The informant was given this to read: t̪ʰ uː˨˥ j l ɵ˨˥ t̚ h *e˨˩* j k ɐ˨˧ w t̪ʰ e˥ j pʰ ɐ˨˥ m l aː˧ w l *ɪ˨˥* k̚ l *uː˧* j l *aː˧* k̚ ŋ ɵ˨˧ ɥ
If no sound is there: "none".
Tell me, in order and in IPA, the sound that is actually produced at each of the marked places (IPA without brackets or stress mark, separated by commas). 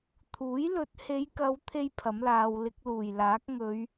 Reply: e˨˧, ɪ˧, uː˨˩, aː˨˥